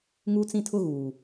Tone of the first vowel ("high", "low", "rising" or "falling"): high